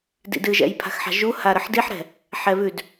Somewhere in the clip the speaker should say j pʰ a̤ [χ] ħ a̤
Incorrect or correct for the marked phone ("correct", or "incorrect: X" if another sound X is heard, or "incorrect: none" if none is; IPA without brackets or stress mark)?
incorrect: x